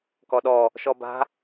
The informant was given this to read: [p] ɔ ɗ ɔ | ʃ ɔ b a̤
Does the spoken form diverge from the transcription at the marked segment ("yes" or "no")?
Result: yes